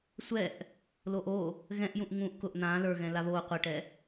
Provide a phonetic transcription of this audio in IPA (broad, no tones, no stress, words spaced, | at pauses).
sʷɛʔ | loʔo | ɣɛ̃ʔ jũʔŋũːʔkʊʔ n̪ãː lə˞ɣɛ̃ laβoː qʷɛʈɛ